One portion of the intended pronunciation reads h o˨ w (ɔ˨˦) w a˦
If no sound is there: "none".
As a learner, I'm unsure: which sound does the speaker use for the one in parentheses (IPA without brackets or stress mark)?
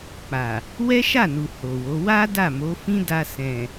o˨˦